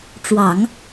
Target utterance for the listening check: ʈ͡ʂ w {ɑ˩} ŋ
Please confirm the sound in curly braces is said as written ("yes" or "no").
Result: no